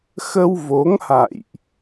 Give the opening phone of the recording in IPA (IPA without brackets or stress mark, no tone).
x